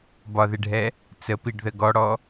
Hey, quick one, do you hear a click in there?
no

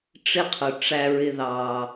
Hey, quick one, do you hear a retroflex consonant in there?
yes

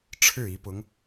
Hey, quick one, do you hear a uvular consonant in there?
no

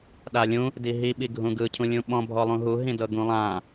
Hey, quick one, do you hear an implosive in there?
yes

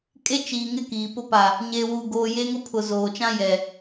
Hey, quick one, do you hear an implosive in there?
no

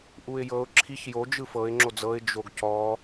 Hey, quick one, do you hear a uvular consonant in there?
no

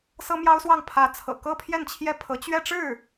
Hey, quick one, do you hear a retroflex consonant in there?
yes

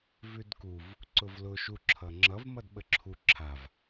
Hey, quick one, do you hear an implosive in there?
yes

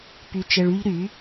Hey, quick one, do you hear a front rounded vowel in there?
yes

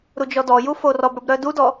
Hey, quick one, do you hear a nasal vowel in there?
no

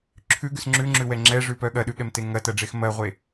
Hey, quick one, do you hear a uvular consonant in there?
yes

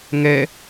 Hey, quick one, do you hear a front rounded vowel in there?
no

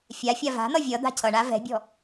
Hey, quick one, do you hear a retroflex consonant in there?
yes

